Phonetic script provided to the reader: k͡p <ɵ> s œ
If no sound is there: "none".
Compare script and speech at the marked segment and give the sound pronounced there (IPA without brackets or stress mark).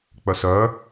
œ